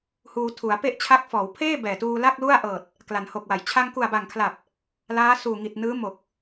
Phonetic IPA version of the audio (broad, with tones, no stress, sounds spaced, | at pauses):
h uː˧ tʰ u˩˦ a̯ p e˥˩ ʔ t͡ɕʰ a˦˥ k̚ f ɔː˩˦ w pʰ eː˥˩ b ɛː˨˩ t uː˧ l a˥˩ k̚ l u˥˩ a̯ ʔ ɤː˨˩ t̚ | k l a˩˦ n h o˨˩ k̚ w a˩˦ j t͡ɕʰ a˧ ŋ k u˨˩ a̯ b a˨˩ ŋ kʰ l a˨˩ p̚ | l aː˦˥ s uː˨˩ ŋ i˨˩ t̚ n ɯː˦˥ m o˨˩ k̚